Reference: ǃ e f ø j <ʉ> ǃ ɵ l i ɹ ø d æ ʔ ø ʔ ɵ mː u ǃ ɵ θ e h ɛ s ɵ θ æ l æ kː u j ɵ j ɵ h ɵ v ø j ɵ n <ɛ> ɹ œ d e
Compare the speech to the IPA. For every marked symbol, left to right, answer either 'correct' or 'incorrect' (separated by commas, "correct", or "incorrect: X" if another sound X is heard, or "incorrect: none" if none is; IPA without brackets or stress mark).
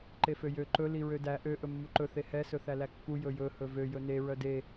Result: incorrect: ø, incorrect: e